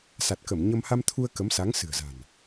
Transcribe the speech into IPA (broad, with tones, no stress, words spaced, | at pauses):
sa˨˩t̚kə˧˩m ɲə˧m ha˧mt̪ʰu˧ə̯ kə˨˦msa˨˦ŋ sɨ̤˨˩ə̯za̤˨˩n